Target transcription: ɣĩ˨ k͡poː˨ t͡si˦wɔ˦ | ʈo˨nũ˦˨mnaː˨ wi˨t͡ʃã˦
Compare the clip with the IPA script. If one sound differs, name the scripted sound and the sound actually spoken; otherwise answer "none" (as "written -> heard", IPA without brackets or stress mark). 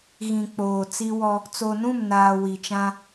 ʈ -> t͡s